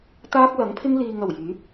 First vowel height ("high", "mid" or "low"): low